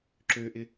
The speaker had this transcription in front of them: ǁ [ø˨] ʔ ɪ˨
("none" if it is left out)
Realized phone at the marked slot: ø˨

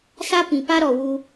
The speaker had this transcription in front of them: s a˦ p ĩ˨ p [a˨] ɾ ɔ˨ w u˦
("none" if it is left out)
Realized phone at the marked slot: a˦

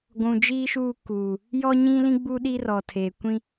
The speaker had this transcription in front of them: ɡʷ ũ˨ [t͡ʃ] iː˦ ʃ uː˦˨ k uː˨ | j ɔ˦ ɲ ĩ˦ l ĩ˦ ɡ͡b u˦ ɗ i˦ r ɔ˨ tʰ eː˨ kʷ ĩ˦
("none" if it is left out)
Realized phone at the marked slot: d͡ʒ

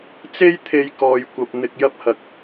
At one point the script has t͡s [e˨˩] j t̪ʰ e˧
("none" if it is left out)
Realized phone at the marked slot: e˥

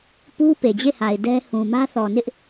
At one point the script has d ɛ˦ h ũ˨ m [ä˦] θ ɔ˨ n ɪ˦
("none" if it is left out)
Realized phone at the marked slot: ä˦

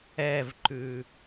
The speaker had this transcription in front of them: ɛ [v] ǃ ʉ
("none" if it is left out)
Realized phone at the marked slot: v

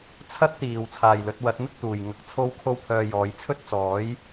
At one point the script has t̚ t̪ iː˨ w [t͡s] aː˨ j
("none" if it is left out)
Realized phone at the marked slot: t͡sʰ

